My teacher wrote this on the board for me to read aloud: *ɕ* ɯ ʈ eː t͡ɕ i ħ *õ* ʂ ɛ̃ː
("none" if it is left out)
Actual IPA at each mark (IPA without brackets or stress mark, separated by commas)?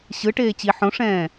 ɕ, õ